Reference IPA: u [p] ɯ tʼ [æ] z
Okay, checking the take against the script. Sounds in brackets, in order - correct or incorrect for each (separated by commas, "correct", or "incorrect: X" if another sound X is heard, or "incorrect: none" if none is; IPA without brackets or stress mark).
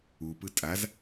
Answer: correct, incorrect: a